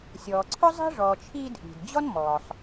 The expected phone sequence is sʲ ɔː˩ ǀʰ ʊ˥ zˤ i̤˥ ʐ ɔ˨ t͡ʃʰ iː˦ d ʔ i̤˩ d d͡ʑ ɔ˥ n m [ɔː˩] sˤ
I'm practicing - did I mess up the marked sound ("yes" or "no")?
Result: no